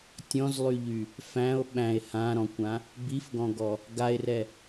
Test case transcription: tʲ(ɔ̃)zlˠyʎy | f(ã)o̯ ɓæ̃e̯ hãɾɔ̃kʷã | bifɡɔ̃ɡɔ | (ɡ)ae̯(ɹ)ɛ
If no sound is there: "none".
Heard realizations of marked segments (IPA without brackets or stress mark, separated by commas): ɔ̃, æ̃, ɡ, r